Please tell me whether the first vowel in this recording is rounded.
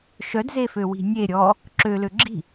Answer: yes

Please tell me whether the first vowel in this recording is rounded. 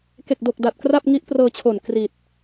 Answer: no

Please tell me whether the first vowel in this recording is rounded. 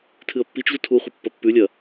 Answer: no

